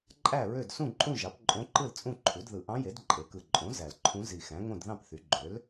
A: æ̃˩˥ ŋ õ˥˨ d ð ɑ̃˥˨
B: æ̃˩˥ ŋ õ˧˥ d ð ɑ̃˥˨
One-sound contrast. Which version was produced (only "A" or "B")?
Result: A